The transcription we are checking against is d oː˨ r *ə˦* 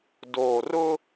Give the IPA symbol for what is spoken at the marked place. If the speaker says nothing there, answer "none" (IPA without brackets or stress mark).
ʊ˦